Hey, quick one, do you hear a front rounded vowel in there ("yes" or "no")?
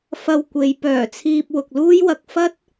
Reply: yes